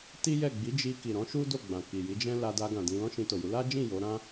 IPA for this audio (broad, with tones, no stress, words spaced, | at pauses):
ti˦jɛ˦˨ ɡ͡bi˨˦d͡ʒi˧ ki˨ɾɔ̃˨˦ʃu˦do˦˨ ɡ͡bã˨ ki˨ji˨˦d͡ʒɛ̃˦ la˧da˧ ɡã˨dĩ˧ lɔ̃˦ʃĩ˧to˨ju˨˦ la˦d͡ʒĩ˦˨ jo˨˦ɾã˦